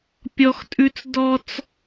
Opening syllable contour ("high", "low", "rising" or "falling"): high